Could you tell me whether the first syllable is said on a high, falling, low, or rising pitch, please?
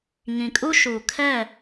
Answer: low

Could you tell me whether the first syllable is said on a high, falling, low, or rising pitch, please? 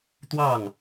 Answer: falling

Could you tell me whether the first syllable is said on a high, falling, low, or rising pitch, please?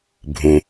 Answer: low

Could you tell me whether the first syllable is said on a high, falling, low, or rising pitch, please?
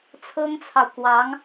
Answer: high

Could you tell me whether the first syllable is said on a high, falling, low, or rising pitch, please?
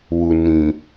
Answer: low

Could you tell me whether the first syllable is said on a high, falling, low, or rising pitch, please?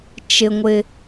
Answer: low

